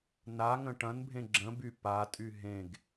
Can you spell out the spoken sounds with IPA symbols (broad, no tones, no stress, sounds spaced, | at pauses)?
n a ŋ ə̃ ʈ ɐ̃ n bʱ ẽ ɡ͡ǁ ə̃ b y p a tʼ y ɦ ẽ ɡ